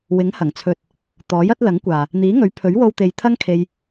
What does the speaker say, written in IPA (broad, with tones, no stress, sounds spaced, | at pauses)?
w ɪ˨˥ ŋ h ɐ˨˩ ŋ t͡sʰ ɵ˨ t̚ | t̪ ɔː˨˥ j ɐ˨˥ t̚ l ɐ˨˥ ŋ kʷ aː˨ | n̪ iː˨˥ ŋ ɵ˨˥ ɥ pʰ ɵ˨˥ ɥ w o˧ w t̪ e˨˧ j t̪ʰ ɐ˥ ŋ kʰ e˧ j